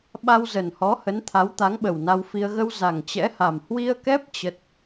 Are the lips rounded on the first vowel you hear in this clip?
no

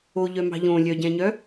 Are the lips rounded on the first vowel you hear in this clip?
yes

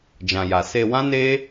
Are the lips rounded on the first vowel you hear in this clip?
no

